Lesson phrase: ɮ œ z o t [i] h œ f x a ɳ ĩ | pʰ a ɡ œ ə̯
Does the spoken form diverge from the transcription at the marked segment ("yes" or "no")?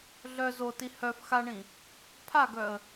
no